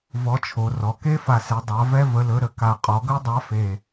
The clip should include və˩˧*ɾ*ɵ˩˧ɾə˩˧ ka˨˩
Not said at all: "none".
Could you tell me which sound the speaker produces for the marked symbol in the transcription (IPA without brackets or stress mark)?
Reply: l